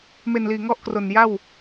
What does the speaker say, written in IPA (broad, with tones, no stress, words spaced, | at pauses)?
me˨˩nliː˨˩ŋɔ˥˩ʔkro˨˩n ja˥˩w